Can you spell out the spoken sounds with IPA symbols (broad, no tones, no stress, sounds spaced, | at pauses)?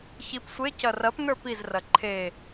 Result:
ç i p sʷ e c ɐ r ɐ p n ə˞ p i z r ɐ ǃʰ e